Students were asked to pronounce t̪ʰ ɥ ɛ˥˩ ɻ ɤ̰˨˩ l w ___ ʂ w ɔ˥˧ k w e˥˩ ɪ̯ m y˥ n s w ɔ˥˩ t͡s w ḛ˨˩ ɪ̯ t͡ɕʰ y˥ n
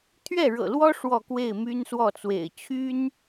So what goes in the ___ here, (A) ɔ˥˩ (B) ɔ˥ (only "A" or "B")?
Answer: B